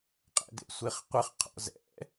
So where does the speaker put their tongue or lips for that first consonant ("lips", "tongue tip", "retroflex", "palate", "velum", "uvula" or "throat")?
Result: uvula